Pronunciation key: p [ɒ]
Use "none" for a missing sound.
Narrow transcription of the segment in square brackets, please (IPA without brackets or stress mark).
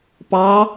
ɑ